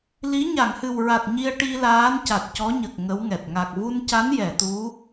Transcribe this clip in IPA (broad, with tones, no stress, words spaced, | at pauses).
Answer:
li˧˥ ɲa˨˩˨ŋhɨ˨˩wɹa˨˩t̚ ɲi˧ə̯ʈi˧ laː˧˥nca˨˩t̚cɔ˧˥ɲə˨˩k̚ ŋə˧˥wŋɛ˨˩t̚ ŋa˨˩k̚vu˧nca˧˥n jɛ˨˩˨t̪u˧˥